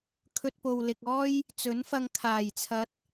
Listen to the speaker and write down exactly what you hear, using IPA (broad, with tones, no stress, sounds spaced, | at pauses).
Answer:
kʰ ɵ˧ t̚ p o˨ w l ɪ˨ k̚ ɔː˥ j | t͡s ɵ˨˥ n f ɐ˧ ŋ kʰ aː˨˩ j t͡sʰ ɐ˨˥ t̚